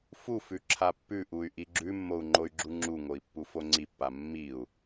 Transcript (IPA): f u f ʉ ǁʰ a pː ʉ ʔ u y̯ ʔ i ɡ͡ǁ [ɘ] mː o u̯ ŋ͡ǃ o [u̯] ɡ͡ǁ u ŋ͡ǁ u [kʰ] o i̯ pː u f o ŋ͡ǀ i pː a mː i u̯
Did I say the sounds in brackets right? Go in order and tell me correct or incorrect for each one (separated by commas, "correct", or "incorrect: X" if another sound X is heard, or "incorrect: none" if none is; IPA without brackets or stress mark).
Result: incorrect: ʉ, incorrect: y̯, incorrect: ŋ